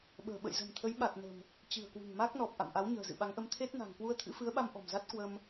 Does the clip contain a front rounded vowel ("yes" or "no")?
no